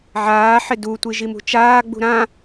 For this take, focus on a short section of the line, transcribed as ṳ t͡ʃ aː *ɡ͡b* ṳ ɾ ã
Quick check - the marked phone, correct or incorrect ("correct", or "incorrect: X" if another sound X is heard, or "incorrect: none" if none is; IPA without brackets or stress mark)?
correct